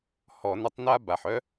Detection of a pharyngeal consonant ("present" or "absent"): present